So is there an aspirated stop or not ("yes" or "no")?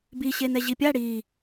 no